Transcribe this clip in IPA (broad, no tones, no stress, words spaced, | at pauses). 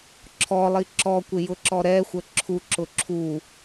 ǁʰɔlˠi ǁɔkʷɪjʊǁɔ ɾɛxʷə ǁʰuǁʊ ǁʰu